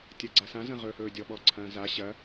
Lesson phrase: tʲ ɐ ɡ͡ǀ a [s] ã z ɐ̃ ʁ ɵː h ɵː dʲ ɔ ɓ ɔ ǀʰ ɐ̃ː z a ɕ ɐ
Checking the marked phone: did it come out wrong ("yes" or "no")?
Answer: no